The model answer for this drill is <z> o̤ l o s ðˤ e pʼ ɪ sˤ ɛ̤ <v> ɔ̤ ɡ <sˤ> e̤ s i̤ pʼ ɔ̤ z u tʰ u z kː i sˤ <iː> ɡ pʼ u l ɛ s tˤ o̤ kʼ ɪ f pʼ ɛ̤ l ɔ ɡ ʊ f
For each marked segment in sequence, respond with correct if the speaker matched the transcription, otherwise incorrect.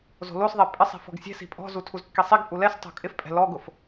correct, incorrect: f, incorrect: sʲ, incorrect: i

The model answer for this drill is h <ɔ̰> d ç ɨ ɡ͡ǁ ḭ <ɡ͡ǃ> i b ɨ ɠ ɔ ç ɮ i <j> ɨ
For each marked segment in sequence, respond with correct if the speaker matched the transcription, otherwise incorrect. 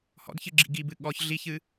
correct, incorrect: ɡ, incorrect: ç

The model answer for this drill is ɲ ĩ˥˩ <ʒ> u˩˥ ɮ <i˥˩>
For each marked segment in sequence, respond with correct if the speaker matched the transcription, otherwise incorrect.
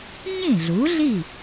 incorrect: ɮ, correct

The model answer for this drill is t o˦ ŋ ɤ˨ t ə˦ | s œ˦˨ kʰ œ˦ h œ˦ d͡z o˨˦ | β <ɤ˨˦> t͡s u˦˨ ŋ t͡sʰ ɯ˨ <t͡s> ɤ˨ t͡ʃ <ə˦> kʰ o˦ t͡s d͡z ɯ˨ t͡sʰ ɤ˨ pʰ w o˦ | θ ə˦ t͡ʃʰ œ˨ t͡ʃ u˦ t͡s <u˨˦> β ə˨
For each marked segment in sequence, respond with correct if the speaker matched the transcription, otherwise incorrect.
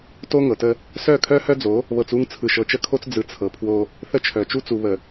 incorrect: ɤ˨, incorrect: ʃ, correct, incorrect: u˨

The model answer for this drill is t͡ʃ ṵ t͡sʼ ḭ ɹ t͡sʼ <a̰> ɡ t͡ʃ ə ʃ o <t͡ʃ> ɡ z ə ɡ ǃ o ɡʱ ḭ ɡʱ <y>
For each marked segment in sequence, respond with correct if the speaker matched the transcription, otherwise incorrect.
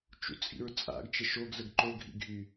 correct, incorrect: none, correct

